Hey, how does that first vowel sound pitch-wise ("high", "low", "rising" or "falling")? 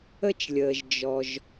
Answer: high